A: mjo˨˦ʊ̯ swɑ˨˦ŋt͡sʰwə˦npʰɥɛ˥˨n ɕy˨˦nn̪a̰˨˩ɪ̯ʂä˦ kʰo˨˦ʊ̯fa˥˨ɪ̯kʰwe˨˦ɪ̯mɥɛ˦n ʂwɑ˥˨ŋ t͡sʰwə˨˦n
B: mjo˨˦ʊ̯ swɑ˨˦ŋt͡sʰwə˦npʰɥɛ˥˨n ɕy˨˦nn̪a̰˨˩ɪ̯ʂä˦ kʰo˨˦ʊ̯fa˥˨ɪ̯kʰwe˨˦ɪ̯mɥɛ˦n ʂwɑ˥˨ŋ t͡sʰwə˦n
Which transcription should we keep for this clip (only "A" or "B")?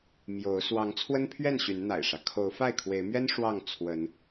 A